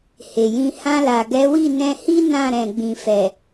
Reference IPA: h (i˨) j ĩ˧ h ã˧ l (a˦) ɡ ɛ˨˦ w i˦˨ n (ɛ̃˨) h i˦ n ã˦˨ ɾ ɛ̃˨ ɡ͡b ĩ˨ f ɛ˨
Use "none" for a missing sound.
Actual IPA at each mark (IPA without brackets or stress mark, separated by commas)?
e˨, a˨, ɛ̃˧